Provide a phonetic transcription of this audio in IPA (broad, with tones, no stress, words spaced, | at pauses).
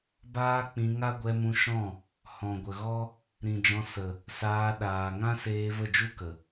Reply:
baː˦k͡pĩ˧ŋa˦ ɡʷɛ˧mũ˧ʃɔ̃˦˨ | hɔ̃˨ɡʷə˨ɣɔ˦ | ɾĩ˨d͡ʒɔ̃˧ sə˨ | saː˧ ɗaː˨ ŋã˦seː˧ və˦˨d͡ʒu˦kə˨